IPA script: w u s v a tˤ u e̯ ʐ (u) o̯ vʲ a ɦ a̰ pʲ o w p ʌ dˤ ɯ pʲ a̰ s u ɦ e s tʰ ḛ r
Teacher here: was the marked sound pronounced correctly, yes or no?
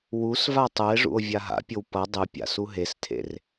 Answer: no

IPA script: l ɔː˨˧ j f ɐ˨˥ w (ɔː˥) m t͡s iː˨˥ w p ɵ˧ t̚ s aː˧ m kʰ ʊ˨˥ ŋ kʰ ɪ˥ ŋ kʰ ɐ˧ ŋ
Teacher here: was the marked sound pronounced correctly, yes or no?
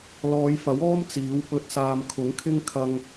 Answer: yes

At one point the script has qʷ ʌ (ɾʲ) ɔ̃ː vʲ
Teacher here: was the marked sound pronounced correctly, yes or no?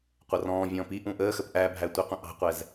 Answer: no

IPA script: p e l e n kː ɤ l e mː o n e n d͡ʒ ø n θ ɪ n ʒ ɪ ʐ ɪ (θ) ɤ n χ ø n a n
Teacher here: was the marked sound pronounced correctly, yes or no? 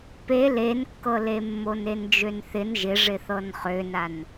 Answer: yes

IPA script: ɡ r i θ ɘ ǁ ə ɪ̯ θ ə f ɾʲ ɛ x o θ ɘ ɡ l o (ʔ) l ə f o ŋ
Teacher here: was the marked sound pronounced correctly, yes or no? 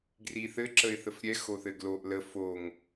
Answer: yes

